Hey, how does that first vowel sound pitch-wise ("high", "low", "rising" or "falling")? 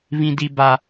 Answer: high